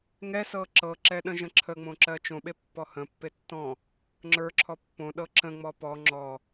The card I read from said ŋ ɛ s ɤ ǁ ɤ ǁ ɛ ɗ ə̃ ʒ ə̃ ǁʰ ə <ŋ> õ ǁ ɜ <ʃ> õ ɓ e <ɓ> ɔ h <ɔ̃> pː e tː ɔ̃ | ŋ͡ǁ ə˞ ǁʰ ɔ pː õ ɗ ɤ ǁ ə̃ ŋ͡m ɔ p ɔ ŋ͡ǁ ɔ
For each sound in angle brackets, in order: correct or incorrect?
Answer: incorrect: ŋ͡m, incorrect: t͡ʃ, incorrect: pː, incorrect: ə̃

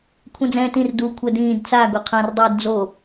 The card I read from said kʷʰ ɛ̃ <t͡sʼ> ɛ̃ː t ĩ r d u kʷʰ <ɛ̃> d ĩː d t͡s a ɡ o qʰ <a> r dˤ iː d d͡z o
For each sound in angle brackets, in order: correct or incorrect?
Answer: incorrect: d͡z, incorrect: ɛ, incorrect: ã

